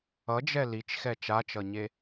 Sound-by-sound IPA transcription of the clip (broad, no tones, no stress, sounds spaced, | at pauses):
ʌ d͡ʒ ɛ l i t͡ʃ x ɛ t͡ʃ a t͡ʃ ʌ ɲ e